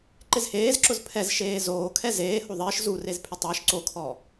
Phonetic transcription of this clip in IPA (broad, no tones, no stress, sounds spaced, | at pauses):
ǃ ɪ z h eː z ǁ ʊ z pʰ ɛ z ʃ eː z oː kʰ ɛ z eː h o ðˤ ɪː ʃ z u r e z pʰ ɪ tˤ ɪː ʃ ǀ o kʰ ɔ